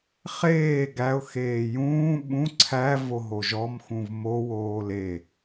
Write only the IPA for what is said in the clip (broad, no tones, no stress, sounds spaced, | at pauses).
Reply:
χ eː ɡ æ ʊ̯ x eː j ũː ɓ ũ ǀʰ æ v o ɦ o ʒ ɔ m x ũ v m o w oː l e